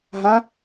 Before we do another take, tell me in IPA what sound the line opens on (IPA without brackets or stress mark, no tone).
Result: ɦ